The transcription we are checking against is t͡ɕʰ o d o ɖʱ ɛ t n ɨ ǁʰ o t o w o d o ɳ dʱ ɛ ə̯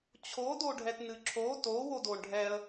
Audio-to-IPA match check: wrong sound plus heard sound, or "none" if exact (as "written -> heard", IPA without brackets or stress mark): dʱ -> ɖʱ